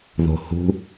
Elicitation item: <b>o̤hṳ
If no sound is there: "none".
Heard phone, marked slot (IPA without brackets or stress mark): ð